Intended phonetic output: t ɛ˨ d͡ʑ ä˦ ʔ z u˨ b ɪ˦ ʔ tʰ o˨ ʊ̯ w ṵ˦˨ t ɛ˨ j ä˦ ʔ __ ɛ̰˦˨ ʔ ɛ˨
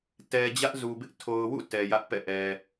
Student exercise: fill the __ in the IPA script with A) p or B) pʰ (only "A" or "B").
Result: A